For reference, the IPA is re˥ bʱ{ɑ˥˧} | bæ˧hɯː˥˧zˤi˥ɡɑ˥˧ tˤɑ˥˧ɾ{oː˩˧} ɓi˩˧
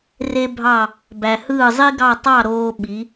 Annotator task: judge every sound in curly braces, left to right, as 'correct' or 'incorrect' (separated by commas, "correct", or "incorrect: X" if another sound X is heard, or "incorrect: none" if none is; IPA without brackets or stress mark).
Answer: correct, incorrect: oː˧